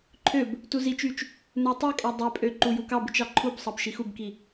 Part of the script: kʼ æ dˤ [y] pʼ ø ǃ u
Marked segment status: incorrect: ø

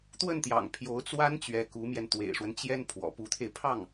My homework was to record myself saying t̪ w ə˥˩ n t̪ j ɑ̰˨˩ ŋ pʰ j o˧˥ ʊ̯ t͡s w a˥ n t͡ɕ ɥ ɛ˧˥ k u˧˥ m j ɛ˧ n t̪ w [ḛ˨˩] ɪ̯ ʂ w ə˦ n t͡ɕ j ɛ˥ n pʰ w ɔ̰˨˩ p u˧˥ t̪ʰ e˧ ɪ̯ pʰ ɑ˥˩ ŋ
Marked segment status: correct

